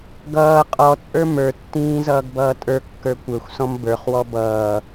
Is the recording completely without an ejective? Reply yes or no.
no